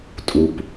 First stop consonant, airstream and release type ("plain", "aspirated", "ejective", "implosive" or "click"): ejective